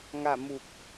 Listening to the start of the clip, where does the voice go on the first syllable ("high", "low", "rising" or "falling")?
falling